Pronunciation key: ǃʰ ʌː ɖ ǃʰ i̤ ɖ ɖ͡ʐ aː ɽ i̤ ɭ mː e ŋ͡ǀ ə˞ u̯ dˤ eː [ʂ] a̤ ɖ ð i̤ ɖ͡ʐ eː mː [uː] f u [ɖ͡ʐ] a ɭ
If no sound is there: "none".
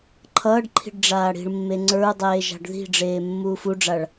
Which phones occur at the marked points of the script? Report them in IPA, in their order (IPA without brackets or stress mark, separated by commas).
ʒ, uː, ɖ͡ʐ